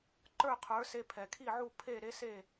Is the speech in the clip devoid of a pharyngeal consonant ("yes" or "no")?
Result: no